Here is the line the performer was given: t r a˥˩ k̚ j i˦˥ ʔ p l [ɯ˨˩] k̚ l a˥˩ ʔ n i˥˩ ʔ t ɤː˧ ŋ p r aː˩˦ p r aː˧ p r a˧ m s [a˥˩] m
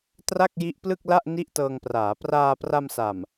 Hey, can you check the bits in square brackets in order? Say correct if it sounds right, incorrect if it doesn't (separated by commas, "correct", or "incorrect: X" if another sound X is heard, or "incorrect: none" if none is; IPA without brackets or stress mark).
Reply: incorrect: ɯ˥˩, incorrect: a˨˩